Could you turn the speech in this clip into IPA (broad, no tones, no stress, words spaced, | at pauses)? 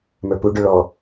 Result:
mə˞puɖʏ ɭɔ